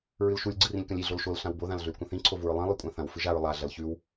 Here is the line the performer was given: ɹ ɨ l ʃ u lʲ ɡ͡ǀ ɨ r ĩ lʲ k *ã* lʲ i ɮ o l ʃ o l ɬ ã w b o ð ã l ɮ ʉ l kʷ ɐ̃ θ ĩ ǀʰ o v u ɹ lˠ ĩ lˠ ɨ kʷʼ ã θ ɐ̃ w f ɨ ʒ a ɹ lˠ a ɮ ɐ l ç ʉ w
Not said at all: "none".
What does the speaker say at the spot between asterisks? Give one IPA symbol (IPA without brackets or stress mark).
ɐ̃